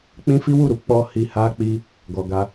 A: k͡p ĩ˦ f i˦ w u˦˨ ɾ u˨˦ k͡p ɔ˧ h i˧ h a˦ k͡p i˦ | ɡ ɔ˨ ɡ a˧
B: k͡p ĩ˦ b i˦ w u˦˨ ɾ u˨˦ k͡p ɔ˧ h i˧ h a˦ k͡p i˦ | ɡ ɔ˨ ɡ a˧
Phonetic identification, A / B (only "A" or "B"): A